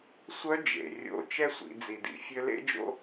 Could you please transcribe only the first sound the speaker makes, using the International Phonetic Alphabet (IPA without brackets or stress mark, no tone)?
sʷ